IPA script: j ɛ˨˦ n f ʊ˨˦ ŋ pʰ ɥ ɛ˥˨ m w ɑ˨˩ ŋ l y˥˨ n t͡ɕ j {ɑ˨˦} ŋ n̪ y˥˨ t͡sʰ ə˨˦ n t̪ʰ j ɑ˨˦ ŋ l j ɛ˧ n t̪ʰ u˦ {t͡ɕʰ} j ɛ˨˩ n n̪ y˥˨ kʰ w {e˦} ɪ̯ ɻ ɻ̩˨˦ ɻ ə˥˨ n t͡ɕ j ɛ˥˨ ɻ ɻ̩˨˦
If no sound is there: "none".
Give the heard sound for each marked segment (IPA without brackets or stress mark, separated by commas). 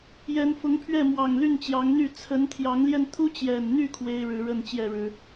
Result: ɑ˨˦, t͡ɕ, e˦